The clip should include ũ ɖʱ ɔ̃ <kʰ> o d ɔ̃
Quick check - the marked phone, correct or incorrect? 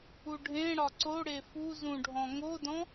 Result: incorrect